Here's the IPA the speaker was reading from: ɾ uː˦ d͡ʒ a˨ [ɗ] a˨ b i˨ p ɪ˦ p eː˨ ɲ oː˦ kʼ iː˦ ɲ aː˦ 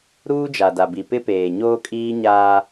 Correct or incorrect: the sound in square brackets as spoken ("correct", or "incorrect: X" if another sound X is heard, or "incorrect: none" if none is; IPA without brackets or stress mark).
incorrect: d